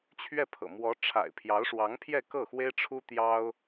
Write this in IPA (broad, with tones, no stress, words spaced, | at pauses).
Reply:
t͡ɕʰɥɛ˥˩pʰɤ̰˨˩ mwɔ˧˥ ʈ͡ʂʰa̰˨˩ɪ̯ pʰjɑ˧˥ʊ̯ʂwɑ˧˥ŋpʰjɛ˥˧ kɤ˥˩xwe˥ɪ̯ ʈ͡ʂʰu˥t̪jɑ˥ʊ̯